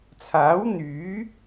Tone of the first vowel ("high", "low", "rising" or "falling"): rising